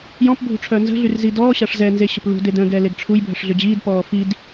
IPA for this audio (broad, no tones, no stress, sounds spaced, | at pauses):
j ɔ̃ p bʱ ṳ ʈ͡ʂʰ œ n z ə̤ ɮ y r z i d ɔː ɕ a ʂ z ɛ n z e ɕ ə p l ṳ d e d ə̃ ɡ ɛː l e ɡ ʈ͡ʂʰ u j bʱ ə ʂ ɮ ʏ d͡ʑ iː d p ɔː f i d